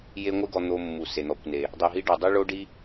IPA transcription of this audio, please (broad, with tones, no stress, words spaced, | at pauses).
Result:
je˦ŋʷe˦ɡɔ˧ n̪o˧mːu˨ se˨n̪ɔ˨kʷne˨ | dˤu˨ɦi˧ɖɔ˨ dˤu˧ ɭo˦ɖi˦